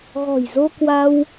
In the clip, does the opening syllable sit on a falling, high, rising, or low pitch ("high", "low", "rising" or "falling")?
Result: low